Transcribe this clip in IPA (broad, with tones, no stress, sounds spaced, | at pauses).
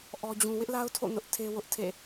ʔ ɔ˦ d͡ʑ ũ˦ w ɪ˦ ʔ l a˦ ʊ̯ tʰ o̰˦˨ n ʊ˦ ʔ tʰ e˦ w ʊ˦ ʔ tʰ ḛ˦˨